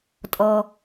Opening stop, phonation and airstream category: ejective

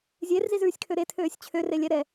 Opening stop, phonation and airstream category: aspirated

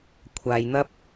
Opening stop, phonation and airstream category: aspirated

